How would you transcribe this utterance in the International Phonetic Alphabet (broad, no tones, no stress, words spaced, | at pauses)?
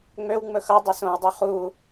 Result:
ŋ͡møwŋ͡mɵ xʌdˤɵ sõwdˤø χu